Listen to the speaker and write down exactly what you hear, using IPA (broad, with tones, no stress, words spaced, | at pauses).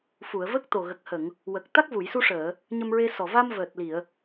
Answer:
fu˨˩˨ə̯və˦˥k̚t̪o˨˩ ɣə˨˩k̚hə˨˩˨ŋ | wə˨˩k̚ t̪a˦˥k̚vu˨˩˨jsu˧ʂəː˨˩˨ | ɲə˧mɹe˧sɔ˨˩ va˧m vəː˨˩t̚li˨˩˨ə̯